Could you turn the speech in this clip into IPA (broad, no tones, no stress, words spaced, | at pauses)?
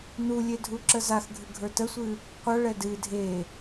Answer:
nulʲe dʱuǁəzaxɡʱɨ ɡʱə˞təsʷɨ | qʷʌɭɛ dɨ dʱe